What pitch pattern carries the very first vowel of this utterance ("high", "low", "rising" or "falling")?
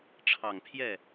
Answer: low